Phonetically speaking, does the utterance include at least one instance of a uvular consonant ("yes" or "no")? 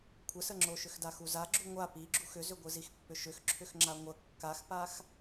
no